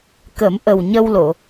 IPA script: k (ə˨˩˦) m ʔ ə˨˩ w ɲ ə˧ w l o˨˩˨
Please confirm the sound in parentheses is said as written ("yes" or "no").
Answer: yes